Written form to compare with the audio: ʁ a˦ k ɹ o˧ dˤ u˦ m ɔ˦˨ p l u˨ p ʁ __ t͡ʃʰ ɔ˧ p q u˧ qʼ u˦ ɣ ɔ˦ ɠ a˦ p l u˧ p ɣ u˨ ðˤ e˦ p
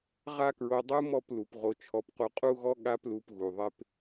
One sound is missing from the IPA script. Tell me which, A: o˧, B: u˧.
A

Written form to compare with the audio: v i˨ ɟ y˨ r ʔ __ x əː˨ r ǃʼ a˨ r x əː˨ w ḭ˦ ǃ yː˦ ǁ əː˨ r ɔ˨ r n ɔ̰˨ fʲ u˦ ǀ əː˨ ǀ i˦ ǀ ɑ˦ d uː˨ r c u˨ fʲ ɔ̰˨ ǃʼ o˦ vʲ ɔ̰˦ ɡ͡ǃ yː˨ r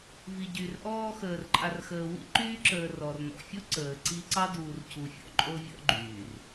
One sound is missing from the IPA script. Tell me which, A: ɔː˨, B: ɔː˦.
B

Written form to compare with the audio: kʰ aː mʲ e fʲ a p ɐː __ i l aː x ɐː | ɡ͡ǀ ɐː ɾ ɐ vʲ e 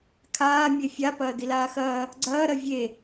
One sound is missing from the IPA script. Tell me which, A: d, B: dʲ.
A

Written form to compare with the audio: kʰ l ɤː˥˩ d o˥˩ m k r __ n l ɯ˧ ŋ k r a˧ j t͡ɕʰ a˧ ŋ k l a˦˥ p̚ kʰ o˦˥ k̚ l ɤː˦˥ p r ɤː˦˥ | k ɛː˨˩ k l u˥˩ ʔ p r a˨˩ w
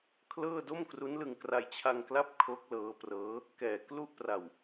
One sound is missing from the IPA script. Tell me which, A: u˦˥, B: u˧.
A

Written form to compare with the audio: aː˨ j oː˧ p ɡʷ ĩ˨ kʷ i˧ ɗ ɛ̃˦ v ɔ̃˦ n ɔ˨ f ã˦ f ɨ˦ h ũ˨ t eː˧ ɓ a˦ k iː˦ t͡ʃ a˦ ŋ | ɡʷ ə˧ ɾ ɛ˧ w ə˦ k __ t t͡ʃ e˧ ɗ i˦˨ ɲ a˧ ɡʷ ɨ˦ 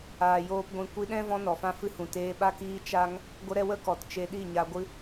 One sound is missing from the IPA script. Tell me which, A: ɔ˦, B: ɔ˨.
B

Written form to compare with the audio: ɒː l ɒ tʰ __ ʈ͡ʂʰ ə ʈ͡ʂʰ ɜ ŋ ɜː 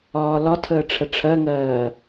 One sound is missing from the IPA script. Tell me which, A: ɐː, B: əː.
B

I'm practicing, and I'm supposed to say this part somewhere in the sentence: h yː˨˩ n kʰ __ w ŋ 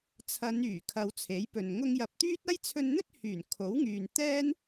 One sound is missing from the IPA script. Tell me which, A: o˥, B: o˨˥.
B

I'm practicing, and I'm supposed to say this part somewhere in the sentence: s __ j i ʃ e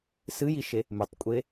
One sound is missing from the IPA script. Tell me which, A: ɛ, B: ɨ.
B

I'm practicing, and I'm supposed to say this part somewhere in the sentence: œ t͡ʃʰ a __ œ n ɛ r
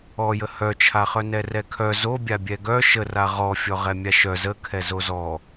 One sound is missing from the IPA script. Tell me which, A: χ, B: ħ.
A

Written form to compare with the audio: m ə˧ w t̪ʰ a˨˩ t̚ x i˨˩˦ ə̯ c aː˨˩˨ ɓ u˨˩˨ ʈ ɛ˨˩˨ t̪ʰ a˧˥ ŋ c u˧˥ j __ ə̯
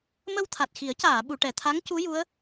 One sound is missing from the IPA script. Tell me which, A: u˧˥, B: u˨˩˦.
A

